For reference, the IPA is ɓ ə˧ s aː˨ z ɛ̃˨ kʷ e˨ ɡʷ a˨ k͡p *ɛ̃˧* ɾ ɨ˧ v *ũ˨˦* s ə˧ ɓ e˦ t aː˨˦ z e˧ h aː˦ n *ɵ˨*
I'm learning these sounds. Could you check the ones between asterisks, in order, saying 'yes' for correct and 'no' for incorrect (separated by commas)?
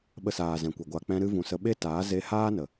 yes, no, no